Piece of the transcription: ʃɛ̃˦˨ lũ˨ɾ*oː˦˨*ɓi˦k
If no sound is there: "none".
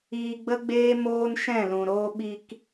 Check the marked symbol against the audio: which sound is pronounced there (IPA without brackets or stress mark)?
oː˦